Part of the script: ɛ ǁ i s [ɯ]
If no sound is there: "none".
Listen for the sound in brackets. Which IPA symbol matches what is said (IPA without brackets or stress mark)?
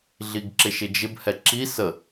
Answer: ə